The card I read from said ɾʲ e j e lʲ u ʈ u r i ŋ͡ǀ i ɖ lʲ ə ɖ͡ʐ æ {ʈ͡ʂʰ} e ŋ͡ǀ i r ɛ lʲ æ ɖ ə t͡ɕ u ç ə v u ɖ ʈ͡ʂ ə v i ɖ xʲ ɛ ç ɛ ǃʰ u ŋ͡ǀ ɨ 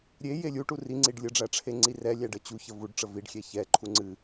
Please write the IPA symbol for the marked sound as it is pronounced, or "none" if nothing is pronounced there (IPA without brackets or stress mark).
ʈ͡ʂʰ